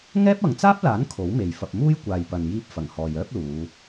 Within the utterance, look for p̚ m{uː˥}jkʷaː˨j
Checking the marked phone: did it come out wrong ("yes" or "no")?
no